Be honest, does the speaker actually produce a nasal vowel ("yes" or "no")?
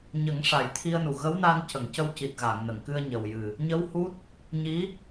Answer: no